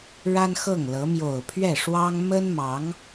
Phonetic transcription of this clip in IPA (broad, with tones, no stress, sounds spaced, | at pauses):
ɻ a˥ n x ɤ˥˩ ŋ l ɤ˧˥ m j o˨˩ ʊ̯ pʰ ɥ ɛ˥˩ ʂ w ɑ˥ ŋ m ə˥ n m ɑ˧˥ ŋ